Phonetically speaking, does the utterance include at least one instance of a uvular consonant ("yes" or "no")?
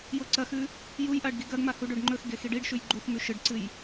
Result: no